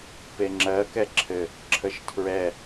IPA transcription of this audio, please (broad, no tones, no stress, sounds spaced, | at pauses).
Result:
p e ŋ͡ǁ ɜ k ɛ ǁʰ ɘ | ǁʰ ə ʃ tʰ ɹ ɛ